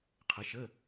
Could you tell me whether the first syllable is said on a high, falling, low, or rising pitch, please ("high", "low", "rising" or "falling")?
rising